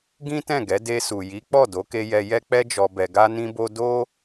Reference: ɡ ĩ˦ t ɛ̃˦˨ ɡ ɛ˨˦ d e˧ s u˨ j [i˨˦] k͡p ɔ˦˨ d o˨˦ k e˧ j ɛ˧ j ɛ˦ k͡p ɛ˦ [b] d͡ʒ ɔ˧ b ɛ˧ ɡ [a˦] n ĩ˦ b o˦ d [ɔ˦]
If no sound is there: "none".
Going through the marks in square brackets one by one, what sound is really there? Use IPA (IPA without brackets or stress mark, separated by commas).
i˨˦, none, a˦, o˦